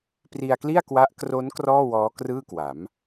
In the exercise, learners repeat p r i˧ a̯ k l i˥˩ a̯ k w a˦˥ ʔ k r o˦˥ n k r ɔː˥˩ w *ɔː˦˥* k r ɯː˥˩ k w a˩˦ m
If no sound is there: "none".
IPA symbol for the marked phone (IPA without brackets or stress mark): ɔː˦˥